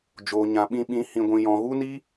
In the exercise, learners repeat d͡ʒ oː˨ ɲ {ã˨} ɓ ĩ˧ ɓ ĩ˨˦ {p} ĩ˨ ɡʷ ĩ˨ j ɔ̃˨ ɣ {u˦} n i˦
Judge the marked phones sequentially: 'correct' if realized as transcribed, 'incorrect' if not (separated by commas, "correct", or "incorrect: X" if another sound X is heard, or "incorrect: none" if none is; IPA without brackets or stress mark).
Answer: correct, incorrect: h, correct